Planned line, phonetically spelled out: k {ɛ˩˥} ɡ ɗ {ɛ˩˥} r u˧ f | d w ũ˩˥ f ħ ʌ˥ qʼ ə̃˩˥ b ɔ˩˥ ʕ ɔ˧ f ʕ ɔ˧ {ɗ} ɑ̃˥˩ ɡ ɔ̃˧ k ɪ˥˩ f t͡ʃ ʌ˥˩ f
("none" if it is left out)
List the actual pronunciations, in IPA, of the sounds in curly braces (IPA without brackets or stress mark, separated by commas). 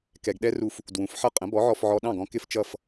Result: ɛ˧, ɛ˥, ɗ